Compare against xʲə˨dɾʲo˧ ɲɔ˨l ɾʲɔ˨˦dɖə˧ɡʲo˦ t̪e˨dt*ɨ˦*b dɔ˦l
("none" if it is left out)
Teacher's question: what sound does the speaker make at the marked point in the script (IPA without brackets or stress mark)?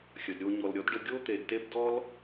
e˦